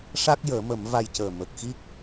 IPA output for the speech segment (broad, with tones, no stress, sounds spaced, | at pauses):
ʂ a˦˥ k̚ j əː˨˩˦ m ə˨˩˦ m v a˧ j c əː˨˩ m ə˨˩ k̚ x i˦˥ k̚